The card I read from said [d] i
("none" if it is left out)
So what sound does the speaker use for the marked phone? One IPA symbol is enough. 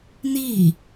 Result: n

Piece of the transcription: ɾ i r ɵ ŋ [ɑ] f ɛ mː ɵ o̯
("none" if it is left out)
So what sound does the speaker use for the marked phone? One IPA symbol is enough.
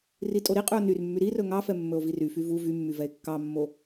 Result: ɑ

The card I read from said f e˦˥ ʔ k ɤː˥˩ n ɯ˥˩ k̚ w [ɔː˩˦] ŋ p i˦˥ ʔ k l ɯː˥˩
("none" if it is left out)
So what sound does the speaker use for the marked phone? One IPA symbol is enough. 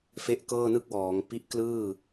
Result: ɔː˩˦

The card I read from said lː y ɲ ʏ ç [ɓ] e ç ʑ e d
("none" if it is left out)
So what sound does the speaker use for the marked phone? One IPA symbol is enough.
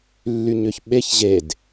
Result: ɓ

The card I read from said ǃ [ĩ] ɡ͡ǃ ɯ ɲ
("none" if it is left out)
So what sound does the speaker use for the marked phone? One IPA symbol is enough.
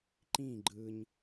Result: ĩ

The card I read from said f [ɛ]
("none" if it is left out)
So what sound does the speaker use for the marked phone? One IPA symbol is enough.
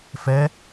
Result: ɛ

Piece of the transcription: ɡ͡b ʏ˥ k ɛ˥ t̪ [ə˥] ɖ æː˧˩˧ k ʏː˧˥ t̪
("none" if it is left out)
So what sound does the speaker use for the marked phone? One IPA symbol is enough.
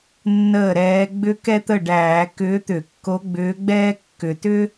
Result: ə˥˩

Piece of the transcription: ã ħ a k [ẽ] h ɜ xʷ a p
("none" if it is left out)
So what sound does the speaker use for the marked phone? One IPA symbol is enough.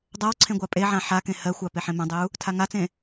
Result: ẽ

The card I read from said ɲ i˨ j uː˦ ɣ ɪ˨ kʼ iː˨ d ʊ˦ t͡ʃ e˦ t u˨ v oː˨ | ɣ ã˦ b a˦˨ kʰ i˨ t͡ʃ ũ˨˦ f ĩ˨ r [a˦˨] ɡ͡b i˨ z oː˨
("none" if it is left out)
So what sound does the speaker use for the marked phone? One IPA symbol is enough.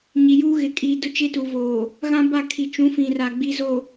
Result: a˨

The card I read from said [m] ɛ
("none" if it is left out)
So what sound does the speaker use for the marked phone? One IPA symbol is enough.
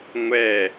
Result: ŋʷ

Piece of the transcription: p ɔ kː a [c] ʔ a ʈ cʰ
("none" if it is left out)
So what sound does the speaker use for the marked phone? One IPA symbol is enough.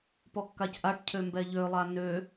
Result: c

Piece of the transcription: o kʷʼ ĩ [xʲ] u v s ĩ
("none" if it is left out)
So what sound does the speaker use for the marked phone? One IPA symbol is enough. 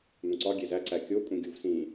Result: ɡʲ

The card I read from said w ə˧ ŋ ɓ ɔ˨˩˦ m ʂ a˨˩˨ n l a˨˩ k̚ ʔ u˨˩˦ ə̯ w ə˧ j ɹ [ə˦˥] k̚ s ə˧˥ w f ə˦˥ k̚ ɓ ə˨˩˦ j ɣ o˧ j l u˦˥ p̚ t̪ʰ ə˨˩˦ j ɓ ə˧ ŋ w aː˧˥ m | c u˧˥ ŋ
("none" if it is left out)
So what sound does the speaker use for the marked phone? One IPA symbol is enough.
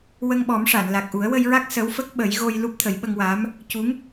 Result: a˦˥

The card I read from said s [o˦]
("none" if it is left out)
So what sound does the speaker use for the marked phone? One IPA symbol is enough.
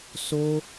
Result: o˦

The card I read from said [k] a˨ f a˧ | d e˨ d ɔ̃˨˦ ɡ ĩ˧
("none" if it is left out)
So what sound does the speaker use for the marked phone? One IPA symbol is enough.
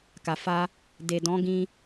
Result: k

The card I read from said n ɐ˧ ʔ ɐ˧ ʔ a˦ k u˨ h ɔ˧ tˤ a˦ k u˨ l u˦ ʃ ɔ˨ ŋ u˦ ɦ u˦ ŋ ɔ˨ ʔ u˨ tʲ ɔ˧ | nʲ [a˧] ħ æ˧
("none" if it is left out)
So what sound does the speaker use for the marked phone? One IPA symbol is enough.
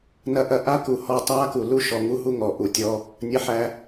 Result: ɐ˧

